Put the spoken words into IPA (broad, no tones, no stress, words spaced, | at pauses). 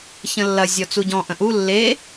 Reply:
çə̃lːɐ zʲɔt͡suɟɔ̃ ʔə̃ʔu lːe